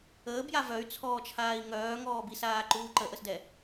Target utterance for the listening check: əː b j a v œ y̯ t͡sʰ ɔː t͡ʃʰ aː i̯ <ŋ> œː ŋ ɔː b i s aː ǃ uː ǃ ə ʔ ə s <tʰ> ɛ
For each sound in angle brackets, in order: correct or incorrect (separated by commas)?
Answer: correct, incorrect